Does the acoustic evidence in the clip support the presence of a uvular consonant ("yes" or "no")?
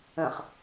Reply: yes